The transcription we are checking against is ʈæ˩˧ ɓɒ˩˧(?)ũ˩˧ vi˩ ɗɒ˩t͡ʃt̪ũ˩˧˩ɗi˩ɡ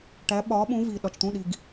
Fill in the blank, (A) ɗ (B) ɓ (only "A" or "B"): B